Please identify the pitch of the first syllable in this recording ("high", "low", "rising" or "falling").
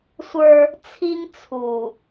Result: high